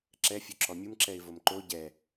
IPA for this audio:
ǁɛfʲo ǁɔmʲumǁɛɪ̯ vomǃo ɟɛ

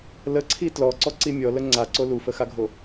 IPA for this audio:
ləǀʰi tlɔǀɔǀi mʲɔlə ŋ͡ǀaǀo lufəxaɡʱo

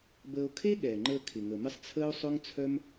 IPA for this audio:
bəː˧o̯ kʰe˦ ɠɛː˨ŋ͡ǃəː˧ kʰɪ˨ŋə˨mɪ˦sˤ t͡sʰəː˦o̯sˤʊ˦ŋt͡sʰœ˦m

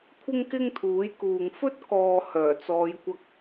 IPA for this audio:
kʷʰɪ˥ŋkɪ˥ŋt̪ʰuː˨˥jkuː˨ŋ fɵ˥t̚kɔː˨ hœː˨˩t͡sɔː˨˧jkʷɐ˧k̚

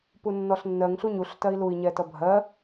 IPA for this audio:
punːɔɬnːɜŋ ɬuɲuɬ tɜi̯lui̯ɲɛtʌ bʱɜ

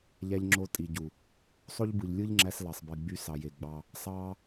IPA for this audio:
ʎæ˧ʎŋ͡ǁo˧ tʼi˨ɟu˨ | sˤo˦ʎ bɯ˨ʎlʲɯ˦ʎŋ͡ǁæ˧s lɑ˨sˤbi˨ ɡ͡by˧ sɑ˨je˨ɡ͡bɑ˧ | sˤɑ˦

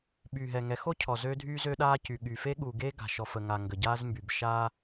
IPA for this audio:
ɓyː˨ɦɛ˨ŋɛ˨˦xo˦ cʰɔ˨zøː˦dʱyː˦ zø˦ɗaː˦cy˨ɠyː˨ fe˦ɠu˨ɡe˦ ɡa̤˨ʃɔ˨fə˨ŋa˨ ŋɡə˨ɟaː˦zmby˨b ʃaː˦

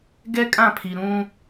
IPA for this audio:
ɡɛ˦kʼã˦˨pʰi˨ ɾũ˦

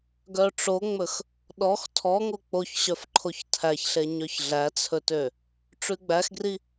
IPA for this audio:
ɡœʈ͡ʂoŋ͡mɵx | ɗɔx tʰɔŋo k͡poçɕœfǃʰoç tʰæçɬe ɲœçɮæt͡sʰɵtø | ʈ͡ʂʉɡ͡bæxɡri

